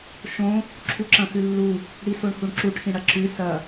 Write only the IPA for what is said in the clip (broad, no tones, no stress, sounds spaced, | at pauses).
ʃ õ | ǁʰ u ǁ ɐ̃ x ʉ lː u | ɽ i s o ɳ h u ɳ ǁ u ʈ x ĩ ɽ ɐ ǁ ʉ s ɐ